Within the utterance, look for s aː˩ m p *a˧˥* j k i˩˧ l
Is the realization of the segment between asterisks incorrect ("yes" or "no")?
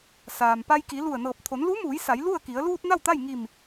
yes